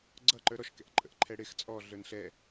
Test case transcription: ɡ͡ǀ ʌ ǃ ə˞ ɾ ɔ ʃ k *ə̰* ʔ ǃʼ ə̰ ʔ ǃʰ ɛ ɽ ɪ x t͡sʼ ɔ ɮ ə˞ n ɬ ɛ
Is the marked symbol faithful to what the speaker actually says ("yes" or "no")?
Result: no